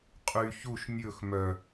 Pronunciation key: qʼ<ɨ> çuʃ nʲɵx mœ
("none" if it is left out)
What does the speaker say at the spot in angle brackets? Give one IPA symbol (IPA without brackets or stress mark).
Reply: y